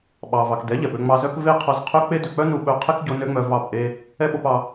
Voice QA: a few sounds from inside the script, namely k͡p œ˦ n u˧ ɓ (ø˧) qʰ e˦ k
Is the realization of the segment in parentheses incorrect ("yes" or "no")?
yes